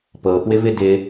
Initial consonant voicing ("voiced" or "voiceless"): voiceless